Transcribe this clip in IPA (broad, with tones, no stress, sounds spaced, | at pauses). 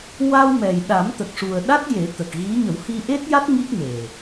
w a˧ w m ɛ˨˩ j ɗ a˨˩˦ m t̪ ə˨˩ k̚ ʂ u˨˩ ə̯ ɗ a˦˥ t̚ j e˨˩˦ t̪ ə˨˩ k̚ ɣ i˧˥ ɲ ə˨˩˦ w h i˧ ʔ e˦˥ t̚ j a˦˥ t̚ ŋ i˦˥ k̚ m e˨˩